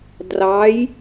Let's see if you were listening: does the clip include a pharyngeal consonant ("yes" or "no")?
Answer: no